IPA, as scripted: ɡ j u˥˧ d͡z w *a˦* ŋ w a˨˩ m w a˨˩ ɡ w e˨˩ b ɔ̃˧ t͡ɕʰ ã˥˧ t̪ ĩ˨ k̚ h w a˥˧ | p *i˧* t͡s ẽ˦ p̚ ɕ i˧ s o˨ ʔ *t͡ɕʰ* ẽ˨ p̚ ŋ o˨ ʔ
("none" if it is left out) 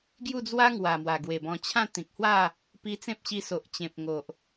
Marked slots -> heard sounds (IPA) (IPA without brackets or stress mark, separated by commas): a˦, i˧, t͡ɕ